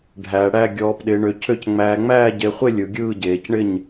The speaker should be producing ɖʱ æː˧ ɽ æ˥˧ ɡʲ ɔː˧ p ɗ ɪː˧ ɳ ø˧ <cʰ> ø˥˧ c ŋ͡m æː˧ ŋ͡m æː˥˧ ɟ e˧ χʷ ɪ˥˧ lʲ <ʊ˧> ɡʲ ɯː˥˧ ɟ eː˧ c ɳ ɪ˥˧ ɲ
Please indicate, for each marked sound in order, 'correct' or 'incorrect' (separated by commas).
correct, incorrect